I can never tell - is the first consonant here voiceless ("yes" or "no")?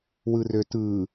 no